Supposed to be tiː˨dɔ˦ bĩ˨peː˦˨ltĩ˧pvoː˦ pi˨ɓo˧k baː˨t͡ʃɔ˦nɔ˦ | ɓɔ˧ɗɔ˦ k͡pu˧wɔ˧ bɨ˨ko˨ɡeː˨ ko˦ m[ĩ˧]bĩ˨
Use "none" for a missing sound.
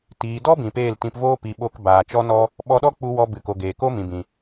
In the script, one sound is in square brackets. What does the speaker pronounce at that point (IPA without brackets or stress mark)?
ĩ˨